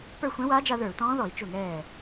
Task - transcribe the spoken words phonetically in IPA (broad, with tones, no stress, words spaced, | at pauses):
pə˞˥˩xʷɛ̃˧˥waː˧˥d͡ʒa˧ ðə˞˧˩˧u̯tɔ̃ː˧˥ðɔ˧˩˧i̯ t͡ʃʊ˥˩ŋɛː˥˩